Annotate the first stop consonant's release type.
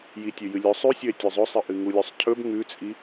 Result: plain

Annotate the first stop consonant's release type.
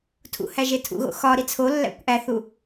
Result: aspirated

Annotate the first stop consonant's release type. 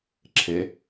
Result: click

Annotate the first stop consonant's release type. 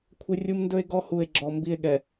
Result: aspirated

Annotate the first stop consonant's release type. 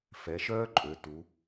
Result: click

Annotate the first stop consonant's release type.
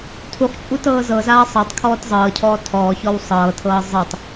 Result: aspirated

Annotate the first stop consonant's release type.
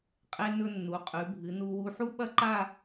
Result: ejective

